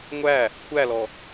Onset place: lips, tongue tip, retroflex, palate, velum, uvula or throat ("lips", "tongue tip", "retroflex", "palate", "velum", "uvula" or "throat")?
velum